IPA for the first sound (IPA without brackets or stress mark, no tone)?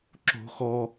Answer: ǁ